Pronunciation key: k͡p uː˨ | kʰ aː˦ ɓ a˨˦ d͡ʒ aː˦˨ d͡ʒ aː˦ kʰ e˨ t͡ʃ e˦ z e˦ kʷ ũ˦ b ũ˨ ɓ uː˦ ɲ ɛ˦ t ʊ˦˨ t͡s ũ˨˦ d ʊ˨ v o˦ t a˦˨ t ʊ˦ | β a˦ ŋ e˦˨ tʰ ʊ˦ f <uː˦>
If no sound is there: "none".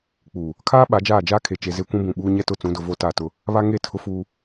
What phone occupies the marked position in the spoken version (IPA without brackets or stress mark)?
uː˦